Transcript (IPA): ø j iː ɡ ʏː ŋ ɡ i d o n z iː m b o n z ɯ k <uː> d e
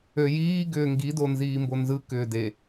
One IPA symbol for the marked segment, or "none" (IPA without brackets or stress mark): ʏː